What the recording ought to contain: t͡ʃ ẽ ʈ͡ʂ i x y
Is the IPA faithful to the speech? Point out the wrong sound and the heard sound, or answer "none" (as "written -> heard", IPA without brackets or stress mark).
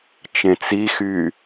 ʈ͡ʂ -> t͡s